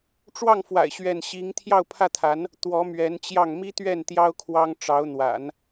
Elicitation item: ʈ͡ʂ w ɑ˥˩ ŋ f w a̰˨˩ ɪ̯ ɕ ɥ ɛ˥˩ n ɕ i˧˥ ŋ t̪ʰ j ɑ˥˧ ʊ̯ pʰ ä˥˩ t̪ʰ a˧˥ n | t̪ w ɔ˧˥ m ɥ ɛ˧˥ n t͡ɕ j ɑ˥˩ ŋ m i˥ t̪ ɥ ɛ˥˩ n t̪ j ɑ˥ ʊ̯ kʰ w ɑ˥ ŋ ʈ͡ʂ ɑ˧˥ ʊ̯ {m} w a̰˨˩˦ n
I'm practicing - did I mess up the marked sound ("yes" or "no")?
yes